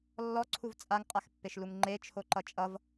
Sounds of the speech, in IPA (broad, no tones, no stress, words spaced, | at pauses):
lːɔǀʰuv t͡sʼaŋqʼaxpːeʃluŋ ŋ͡ǃet͡ʃʰoǃʌ t͡ʃʼʌv